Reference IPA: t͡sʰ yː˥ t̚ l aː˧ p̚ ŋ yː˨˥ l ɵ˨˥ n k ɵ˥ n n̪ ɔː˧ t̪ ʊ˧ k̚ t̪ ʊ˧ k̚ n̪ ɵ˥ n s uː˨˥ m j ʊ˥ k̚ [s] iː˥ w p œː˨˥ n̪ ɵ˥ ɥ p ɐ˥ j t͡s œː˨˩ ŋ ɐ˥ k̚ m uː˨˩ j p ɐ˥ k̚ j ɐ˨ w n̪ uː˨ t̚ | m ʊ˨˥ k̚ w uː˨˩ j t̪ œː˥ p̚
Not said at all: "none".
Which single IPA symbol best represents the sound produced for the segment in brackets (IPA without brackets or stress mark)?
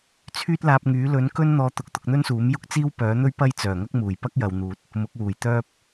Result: t͡s